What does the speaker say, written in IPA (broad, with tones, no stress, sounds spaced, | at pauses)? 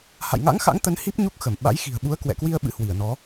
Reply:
h a̰˧˨ j ŋ a̰˧˥ ŋ x a̰˧˥ ŋ t̪ ə˨˦ n h i˦˥ p̚ ɲ u˦˥ k̚ x ə˧˩ m ɓ a̰˧˥ j x i̤˨˩ ə̯ ɓ u˨˦ ə̯ k w ɛ̰˧˨ k w i˧ ə̯ ɓ ɨ̰˧˥ h w i˧˩ ə̯ n ɔ˨˦